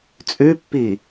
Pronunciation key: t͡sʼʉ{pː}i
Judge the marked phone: correct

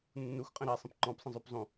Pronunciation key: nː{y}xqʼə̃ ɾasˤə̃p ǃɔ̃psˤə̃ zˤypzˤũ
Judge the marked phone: incorrect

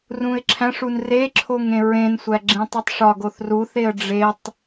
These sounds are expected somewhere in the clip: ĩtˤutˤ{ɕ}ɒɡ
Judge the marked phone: incorrect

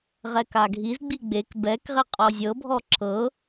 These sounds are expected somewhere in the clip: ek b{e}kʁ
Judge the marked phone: incorrect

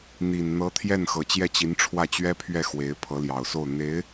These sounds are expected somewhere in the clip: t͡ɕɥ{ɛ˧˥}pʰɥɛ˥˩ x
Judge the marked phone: incorrect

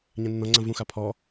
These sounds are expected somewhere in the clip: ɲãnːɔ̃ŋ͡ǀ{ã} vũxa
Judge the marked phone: correct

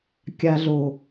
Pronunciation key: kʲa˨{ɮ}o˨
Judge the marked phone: correct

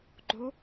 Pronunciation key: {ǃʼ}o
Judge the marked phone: incorrect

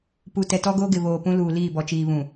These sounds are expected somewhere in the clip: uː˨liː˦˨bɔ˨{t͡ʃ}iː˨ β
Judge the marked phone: correct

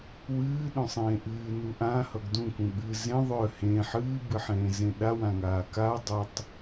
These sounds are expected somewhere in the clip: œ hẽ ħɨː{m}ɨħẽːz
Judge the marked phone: incorrect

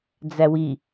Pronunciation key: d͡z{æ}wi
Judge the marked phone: correct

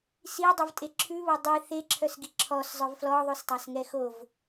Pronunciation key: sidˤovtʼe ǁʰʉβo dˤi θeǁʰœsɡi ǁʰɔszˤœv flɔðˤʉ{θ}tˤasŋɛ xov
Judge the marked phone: incorrect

